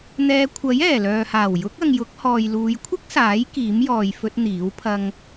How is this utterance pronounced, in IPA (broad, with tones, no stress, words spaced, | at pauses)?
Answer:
n̪ɛː˧ kʷʰɐ˨˥j ɛː˨˩lœː˨haː˨˩w jʊ˨˥k̚ɐ˨ŋ jʊ˨˥k̚hɔː˨jluː˨˧j kʷʰɪ˥k̚saː˨˥j kiː˨˥mjɔː˨j fɵ˧t̚ n̪iː˨˥w pʰɐ˧ŋ